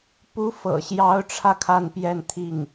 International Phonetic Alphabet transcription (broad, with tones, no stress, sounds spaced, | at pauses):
p u˧˥ f ɤ̰˨˩ ɕ j ɑ˧˥ ʊ̯ ʈ͡ʂʰ ä˧ kʰ a˥˧ n p j ɛ˥˧ n t̪ʰ i˥˩ ŋ